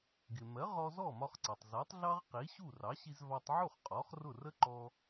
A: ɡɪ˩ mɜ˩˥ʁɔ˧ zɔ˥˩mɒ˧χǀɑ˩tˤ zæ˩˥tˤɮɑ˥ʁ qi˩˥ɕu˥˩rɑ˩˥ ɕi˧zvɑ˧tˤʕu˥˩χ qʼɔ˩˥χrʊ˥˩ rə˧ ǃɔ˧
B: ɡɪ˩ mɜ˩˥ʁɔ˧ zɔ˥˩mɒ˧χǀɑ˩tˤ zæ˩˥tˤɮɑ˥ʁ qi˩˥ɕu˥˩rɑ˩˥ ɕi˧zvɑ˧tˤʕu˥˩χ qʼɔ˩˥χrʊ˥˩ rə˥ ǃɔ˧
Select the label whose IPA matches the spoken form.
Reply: B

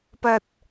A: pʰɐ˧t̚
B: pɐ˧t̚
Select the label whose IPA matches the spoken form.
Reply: B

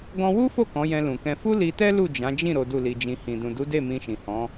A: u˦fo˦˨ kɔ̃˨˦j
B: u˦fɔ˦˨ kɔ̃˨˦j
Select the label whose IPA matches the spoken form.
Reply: A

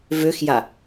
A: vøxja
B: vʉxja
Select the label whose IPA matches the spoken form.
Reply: A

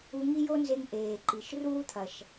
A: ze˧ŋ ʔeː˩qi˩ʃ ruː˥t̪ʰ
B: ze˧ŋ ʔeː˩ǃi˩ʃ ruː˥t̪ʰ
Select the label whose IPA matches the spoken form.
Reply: B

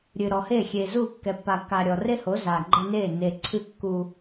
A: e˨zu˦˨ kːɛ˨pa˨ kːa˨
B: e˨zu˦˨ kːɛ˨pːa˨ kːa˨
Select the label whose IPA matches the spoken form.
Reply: B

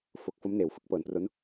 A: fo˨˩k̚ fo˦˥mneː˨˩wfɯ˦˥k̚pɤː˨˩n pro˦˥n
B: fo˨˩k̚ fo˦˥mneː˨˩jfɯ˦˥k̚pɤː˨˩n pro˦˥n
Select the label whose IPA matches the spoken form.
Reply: A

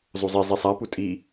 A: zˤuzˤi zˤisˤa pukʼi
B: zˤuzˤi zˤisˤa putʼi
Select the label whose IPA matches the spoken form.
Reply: B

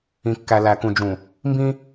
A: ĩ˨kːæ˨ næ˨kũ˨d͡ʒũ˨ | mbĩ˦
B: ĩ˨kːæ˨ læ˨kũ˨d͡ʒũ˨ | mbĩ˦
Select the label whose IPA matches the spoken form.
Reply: B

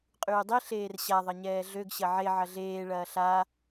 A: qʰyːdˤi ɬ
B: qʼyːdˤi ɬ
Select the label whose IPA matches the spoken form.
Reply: B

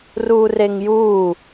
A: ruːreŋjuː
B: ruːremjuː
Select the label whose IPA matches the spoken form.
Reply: A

